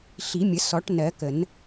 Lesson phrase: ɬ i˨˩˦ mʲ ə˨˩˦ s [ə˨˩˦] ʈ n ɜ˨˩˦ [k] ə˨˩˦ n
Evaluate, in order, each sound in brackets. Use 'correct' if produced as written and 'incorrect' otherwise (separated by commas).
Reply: incorrect, correct